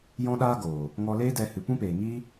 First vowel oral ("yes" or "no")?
no